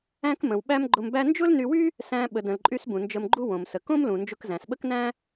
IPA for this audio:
æ̃˥kmə̃˩wɓæ˥m ɡ͡ǃʊ˧mbæ˥ nd͡ʒʊ˥lny˧wy˥ | sæ̃˧ ɓə˩də̃˩lǃʼy˧s bũ˩nd͡ʒə˧mɡ͡ǃu˥ wõ˩msə˩ kõ˥mlũ˩ nd͡ʒʊ˧kzæ̃˩sɓə˥k næ̃˥

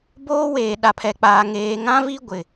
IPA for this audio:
boː˦weː˨ ɗa˨pʰɛ˨k͡paː˨ ŋeː˨ŋã˦vi˦ ɡʷɪ˨

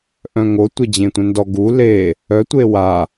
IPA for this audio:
ʔœ̃ŋo tʷed͡ʑẽtʷœ̃ndɔ ɡu le | œ tʷewa

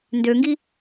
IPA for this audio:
ndøŋɡi

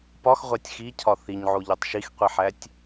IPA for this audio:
pɒxʁʷætʲ xicʰɒ θiɲʕoʎotˤ ʃixqʷiħætʲ

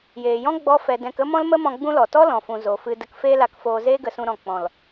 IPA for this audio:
jeː˨jɔ̃˦ ɡ͡bɔ˦fɛ˧ dɛ̃˧kə˦ mɔ̃˦lmə˦mɔ̃˧ ɡ͡bũ˦lɔ˨ tɔ˦lɔ̃˨fũ˨ zo˨fɨ˧ də˧kfeː˦la˧kfoː˧ zeː˦ɡə˧sũ˧ɾɔ̃˨ k͡pɔ̃˨l

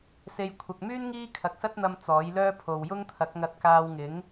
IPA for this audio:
se˧j kʷʰɐ˨k̚myː˥n ŋiː˥kʰɐ˨k̚sɐ˥t̚n̪ɐ˧m t͡sɔː˨˥jlœː˥pʰo˨w jʊ˥ŋt̪ʰɐ˨˥k̚ŋɐ˧t̚ kaː˧wŋɪ˨˥ŋ

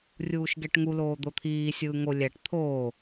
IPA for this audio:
rʲuːʃɡɛʈŋu loːd̪ot̪ʰiː sʲɯːŋo lʲæʈ t̪ʰoː

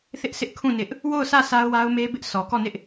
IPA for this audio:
θɪ˦ʔsʰɪ˦ʔkʰũ˦˨ nɪ˦ʔ | wo˦˨ʊ̯sʰä˦˨ sa˦ʊ̯wa˦ʊ̯me˦bɪ˦ʔ sʰɔ˨kɔ˦˨nɪ˦ʔ

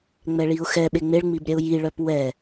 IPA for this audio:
ŋ͡mɛɭiʊ̯xɛɓe ŋ͡meɭŋ͡mib ɾʲɛʊ̯jiɭœp wɛ

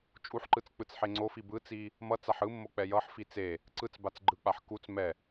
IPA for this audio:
t͡ʃʼuħǃɯt͡s k͡pɯt͡sħeŋ͡ǀofi bɯt͡si | mʌt͡saħ ɯmːo k͡pɛjʌħfi t͡se | ǀɯt͡sbat͡s ɡ͡ǃɯk͡paħ kut͡s mɛ

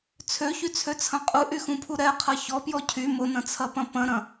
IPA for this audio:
t͡sʰøçyt͡sʰøt͡sʰɐ̃ qʼuʔyxũpʰu ɾɛqʰɐ çɔpjɔ cʰy mʊnɐ̃t͡sʰɐpɐ̃ pɐ̃ɾɐ̃

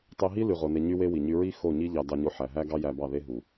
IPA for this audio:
tˤe˧ɦi˦ ly˧ʁo˧ ne˧ɲy˦we˦ wi˨ɲy˧ɹi˦ xo˦˨ɲi˦ʎɑ˧ dɑ˧ɲo˧ ħæ˨ɦæ˦ ɡɑ˦jæ˧bɑ˦˨ ðe˦ɦu˨

